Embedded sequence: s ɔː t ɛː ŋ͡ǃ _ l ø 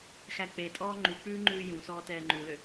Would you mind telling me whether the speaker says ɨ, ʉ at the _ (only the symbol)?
ʉ